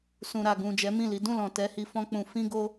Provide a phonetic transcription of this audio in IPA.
s ũ˨ ɾ a˨ ɡ ũ˨ d͡ʒ ɛ˨˦ m ĩ˦˨ l i˨˦ d ũ˦˨ l ɔ̃˨ t ɛ˨˦ h i˧ f ɔ̃˦ k͡p ũ˧ f ĩ˦ ɡ o˦

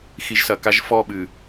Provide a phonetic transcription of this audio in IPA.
x i˨ ʒ s ɐ˨ k a˦ ʒ f ɔ˦˨ ɓ ɨ˨

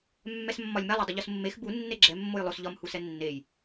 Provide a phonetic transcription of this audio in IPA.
mː ɛ s mː ɒ lʲ m ɛ lˠ ɛ dˤ ʊ ʎ o s mː e x b u nː e ɡ͡ǁ ɛ mː o j lˠ o s ʎ ɒ m h u s ɛ nː e j

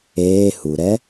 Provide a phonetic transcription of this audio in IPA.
eː h u ɾ ɛ

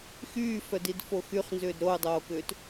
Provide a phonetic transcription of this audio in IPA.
x yː f œ d i d f o x y χ n z ʏː d ɾ o u̯ dˤ oː k ʏː t

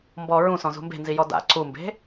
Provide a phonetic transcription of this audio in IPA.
m b ɔ ɹ ũ s ɔ̃ z ṳ m b e̤ n z i j ɔ d a̰ ǀ u m b e̤

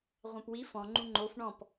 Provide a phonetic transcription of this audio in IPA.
ʁʷ ã p w i f ɔ̃ ŋ͡ǃ ũ ŋ͡ǃ o f ɳ ɔ̃ p

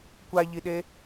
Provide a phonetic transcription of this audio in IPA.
kʷ a ʎ i ɗ e

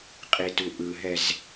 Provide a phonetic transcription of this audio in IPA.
qʼ i t u ʔ ɯ ɦ ɛ z

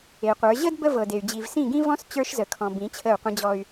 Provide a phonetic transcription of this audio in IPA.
e˨ qʷ ə˞˨˦ ʑ ə˦ d b ə˦ v ɤ˨ d e˨ y̯ d͡ʑ i˨ v s ĩ˦˨ ɡ ĩ˦ v ɔ̃˦ s t͡ɕ ə˞˦ ʃ z ə˨ kʰ ɔ̃˨ b ĩ˨˦ t͡ɕʰ ə˦˨ u̯ qʷ ə̃˦ d͡ʑ ɔ˦ y̯

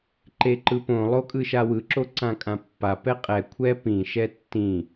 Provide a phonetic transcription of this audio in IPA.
ǃ e ǃ ɯ p õ lˠ o kʼ ɯ ʃ a w ɯ ǁ o ǀ ã kʼ ã pː a p ɛ qʼ ɛ kʷʰ ɛ p ĩ ʃ ɛ tː ĩ

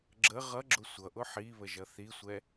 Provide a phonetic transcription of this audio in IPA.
ɡ͡ǁ ə ʁ ʌ ɡ͡ǁ ʊ sʷ ʌ ʔ ʊ ħ i β ə ʒ ʌ θ i sʷ ɛ

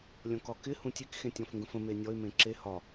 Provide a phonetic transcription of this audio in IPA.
lʲ ɔ̃ k ɒ k ɪ h ũ tʲ e k x ẽ tʲ ɔ̃ f ŋ ɡ ə̃ f ə̃ m e nʲ ɔ ɪ̯ m ẽ ǁ e h ɒ

